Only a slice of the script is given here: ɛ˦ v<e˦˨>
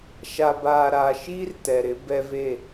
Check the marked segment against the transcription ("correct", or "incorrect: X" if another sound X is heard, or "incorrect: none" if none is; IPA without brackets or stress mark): correct